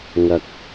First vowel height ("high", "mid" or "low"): low